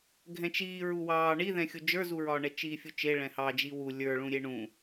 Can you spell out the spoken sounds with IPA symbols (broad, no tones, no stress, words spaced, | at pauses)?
ɡʱɛ̃t͡ʃiː ɹuwɑː ɳiðɛ̃xʲu d͡ʒə˞zuɹɒːɳɛ t͡ʃiːfʲut͡ʃe ɭɛ̃hɑd͡ʒi wu lʲə˞ɭũ ɾʲeɳũ